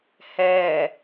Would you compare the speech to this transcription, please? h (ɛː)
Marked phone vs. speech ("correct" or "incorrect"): correct